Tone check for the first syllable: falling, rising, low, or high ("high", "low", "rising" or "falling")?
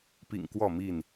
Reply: low